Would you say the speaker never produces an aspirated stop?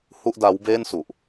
yes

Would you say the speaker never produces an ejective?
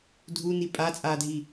no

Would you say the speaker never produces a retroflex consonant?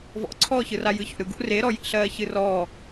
yes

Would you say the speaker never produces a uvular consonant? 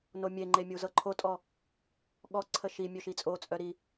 yes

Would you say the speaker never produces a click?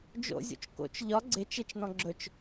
no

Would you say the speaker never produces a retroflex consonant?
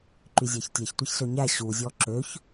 yes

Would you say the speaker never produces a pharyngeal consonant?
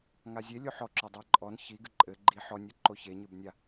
no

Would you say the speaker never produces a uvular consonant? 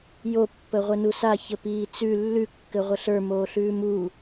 no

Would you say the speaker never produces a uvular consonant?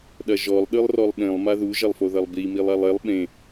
yes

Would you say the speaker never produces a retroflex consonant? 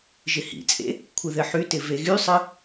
yes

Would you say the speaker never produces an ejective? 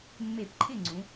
yes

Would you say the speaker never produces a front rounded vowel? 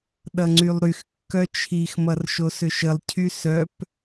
no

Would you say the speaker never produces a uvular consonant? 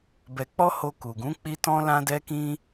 yes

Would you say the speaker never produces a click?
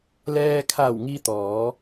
yes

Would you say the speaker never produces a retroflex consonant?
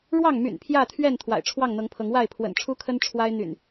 no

